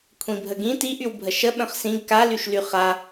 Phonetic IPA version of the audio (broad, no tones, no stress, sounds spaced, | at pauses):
kʷʰ ĩ bʱ ə ɡ ĩ t i ʔ y w bʱ ə ʃ ə ɓ ə̃ χ s ĩ ɡ k a l y ʃ l y χ a